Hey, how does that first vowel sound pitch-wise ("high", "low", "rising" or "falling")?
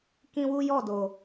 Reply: high